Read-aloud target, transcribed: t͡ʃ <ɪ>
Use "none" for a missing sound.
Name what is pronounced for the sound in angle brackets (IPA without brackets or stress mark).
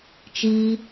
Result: i